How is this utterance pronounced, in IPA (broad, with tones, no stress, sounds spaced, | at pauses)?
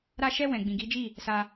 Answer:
ɾ a˧ ʃ ɛ˧ w ɛ̃˨ ɡ͡b ĩ˨ ɡ i˨˦ d͡ʒ i˦˨ | s a˧